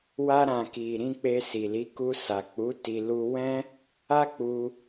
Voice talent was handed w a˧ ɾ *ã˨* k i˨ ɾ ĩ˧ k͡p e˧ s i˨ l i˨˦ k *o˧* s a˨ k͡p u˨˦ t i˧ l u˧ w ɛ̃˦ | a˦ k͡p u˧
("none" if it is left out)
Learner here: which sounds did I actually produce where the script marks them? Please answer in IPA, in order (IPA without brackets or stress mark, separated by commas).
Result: ã˨, u˧